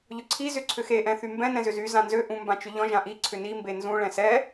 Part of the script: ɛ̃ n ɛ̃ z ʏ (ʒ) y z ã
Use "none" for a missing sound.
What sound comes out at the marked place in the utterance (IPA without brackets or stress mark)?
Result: z